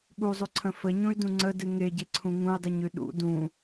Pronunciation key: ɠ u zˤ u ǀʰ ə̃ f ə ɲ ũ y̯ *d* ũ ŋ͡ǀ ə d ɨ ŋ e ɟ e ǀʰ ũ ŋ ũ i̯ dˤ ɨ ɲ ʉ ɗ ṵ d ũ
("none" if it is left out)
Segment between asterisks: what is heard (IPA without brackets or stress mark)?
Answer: d